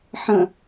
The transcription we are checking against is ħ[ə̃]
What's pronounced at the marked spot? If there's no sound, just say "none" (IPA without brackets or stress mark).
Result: ə̃